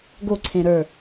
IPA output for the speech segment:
ɡ o ǀʰ ẽ ɾ ə˞

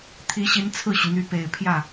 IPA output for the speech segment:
t̪ʰ i˧˥ ɕ i˧˥ n t͡sʰ ɹ̩˥˩ ɕ y˩ n̪ y˧˥ p e˨˩ ɪ̯ pʰ j ä˥˩

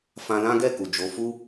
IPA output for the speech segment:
f ã˧ l ã˦ ɡ ɛ˦˨ k u˨ d͡ʒ o˨˦ f u˦

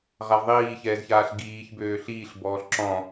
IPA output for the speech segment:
ʁ a v ðˤ iː ç ɛː z ç aː ɬ ɡ iː ç b øː ɬ iː ɬ b ɔː ɬ ǁ ɔ̃

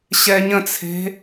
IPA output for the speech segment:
ɕ ɛ ɲ ə̃ t͡sʰ e̤

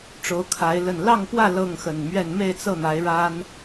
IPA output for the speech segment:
ʈ͡ʂ o˨˦ ʊ̯ kʰ a˨˦ ɪ̯ l ə˨˩ n l ɑ˥˨ ŋ p w ä˥˨ l ɤ˥˨ ŋ x ə˨˩ n m ɥ ɛ˥˨ n m e˥˨ ɪ̯ t͡s ɤ˥˨ n̪ a˨˦ ɪ̯ ɻ a˦ n

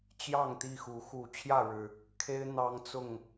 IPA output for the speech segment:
t͡ɕ j ɑ˥˨ ŋ t̪ i˥˨ x u˨˦ x u˨˩ t͡ɕʰ j ä˥˨ ɻ ɻ̩˨˩ | kʰ e˦ ɪ̯ n̪ ɑ˦ ŋ t͡s ʊ˥˨ ŋ

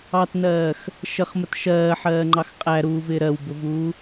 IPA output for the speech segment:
ɑ t n ɜː x | ʃ ə χ m ə t ʃ ɜː ħ ɜː ŋ͡ǃ ɑ x qʼ æ ɾ uː v ɪː ɾ ɜ w b ʊ v uː

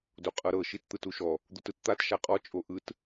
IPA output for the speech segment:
d o qʼ ɤ ɾ ɤ ʃ i t t̪ ɯ t u ʃ ɔ | d̪ u t ɯ t t̪ a t ʃ a qʼ ɔ t͡ʃʼ o ʔ ɯ t

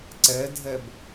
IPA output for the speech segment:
ǀ ɛ dʱ ɛ b

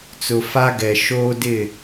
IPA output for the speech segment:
t͡s ʊ˨ f a˦ ɡ ɛ˨ ʃ oː˦ d ɪ˦˨

